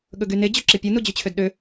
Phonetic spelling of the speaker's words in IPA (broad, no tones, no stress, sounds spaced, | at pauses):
ɠ ɵ ɡ y n e d͡ʑ ɵ ǁ i pʲ u n u d͡ʑ y t͡ɕʰ ø d ɗ ø